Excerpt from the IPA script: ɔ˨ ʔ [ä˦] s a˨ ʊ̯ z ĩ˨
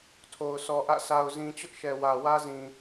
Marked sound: incorrect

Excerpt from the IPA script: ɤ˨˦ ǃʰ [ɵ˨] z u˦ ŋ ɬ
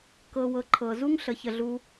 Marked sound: incorrect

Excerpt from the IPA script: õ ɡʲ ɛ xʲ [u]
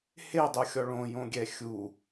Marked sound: correct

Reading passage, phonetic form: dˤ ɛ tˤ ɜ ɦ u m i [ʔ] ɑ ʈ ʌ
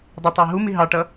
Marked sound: incorrect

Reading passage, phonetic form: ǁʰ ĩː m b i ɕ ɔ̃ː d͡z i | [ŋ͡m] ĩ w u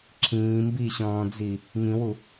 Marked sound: incorrect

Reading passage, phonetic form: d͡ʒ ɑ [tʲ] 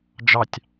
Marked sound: correct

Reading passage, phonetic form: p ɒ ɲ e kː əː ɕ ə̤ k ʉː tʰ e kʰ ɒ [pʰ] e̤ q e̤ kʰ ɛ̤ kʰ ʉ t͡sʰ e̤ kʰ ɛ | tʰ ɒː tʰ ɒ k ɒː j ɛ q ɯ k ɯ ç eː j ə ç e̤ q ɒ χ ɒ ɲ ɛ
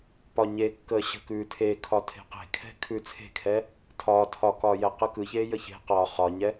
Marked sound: incorrect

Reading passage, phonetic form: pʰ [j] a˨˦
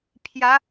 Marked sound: correct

